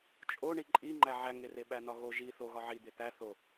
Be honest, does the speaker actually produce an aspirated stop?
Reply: no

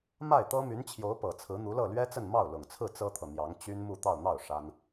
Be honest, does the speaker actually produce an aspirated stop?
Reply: yes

